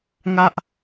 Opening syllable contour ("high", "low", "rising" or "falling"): high